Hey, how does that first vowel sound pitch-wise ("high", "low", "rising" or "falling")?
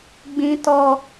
low